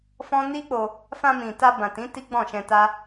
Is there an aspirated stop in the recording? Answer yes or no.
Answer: no